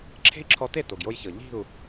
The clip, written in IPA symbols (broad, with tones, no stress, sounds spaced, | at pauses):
ǁʰ e̤˦ i̯ ǁʰ ɔ˧ t e˦˨ t o˨ ɡ j o˧ j ç ɤ˨ ʎ i̤˦˨ u̯